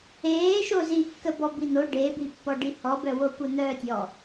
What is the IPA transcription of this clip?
eːʃo zikːə bɔbin̪o ɖebipːɔɖi hɔbœwo kʷœn̪œːtʲɔ

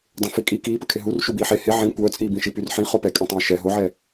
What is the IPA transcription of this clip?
dˤẽfikʼi kiːpəkʰe ɦur ʃubiːħe he ʕĩ kʷœːt͡sʼiːbĩʃi pyrħĩ χopɛkʼẽtˤœ̃ɪ̯ ʃɛ ɦoʕɛ

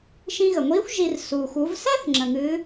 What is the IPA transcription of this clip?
ʃĩ˧ɣə˩ŋʷiː˧˥xʷ ʒi˧r suː˩xʷu˩˧vsɛ˥θ ŋ͡ǁə̃˩ ŋɨː˩˧

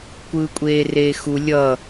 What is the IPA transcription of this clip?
kʷɯːkʷʼeːreːxu lʲʌ

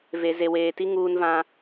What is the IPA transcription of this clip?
ve˨ze˨weː˨ti˦ ŋuː˦nvã˦

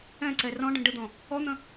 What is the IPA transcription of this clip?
ɛ̃ǀɛ rɔ̃ɖə̃ ɖəd̪ɔ̃ | ɔn̪ə̃

